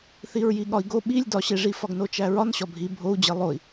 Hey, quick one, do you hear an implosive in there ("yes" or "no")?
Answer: yes